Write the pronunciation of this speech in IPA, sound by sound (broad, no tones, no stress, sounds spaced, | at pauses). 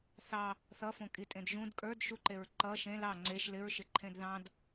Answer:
θ ɑ | θ ʌ f õ kʼ i tʼ ẽ d ʒ ũ d kʼ ə˞ d ʃ u ǃ e ɹ ǃ ʌ ʃ ẽ l ɑ ŋ͡ǀ e ʃ l ɪ ɹ ʃ ɪ ǃʰ ẽ d ð ɑ̃ d